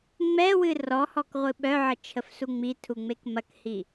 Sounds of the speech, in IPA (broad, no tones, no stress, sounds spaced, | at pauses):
ŋ͡m ɛ w ɨ r ɔ h ɔ k ʁʷ ɨ ɓ œ ʕ ə t͡ʃʰ ə f s u ŋ͡m i tʰ u ŋ͡m e k m ɐ k h i